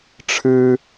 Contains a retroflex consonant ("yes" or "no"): yes